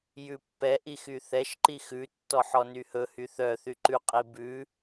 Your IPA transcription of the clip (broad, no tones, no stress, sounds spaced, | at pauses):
j ʉ pː ɛ ʔ i x y θ ɛ ʃ ǃ i x ʉ tː ɔ ħ ɔ n y h ɵ h y θ œ θ y ǃ ʉ qʼ i b ʉ